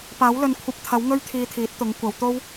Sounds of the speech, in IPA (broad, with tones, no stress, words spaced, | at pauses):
paː˨˥w lɵ˨n kʷʰɐ˧p̚t̪ʰɐ˨˥w ŋɵ˥ɥt̪ʰiː˧t̪ʰiː˨˥t̚t̪ʊ˨˥ŋ kʷɐ˨˧wt̪o˥w